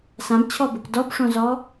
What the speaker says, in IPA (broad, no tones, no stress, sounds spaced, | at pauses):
s ã b t͡ɕʰ ɔ b ʊ k d ɔ b ʂ õ z ɔ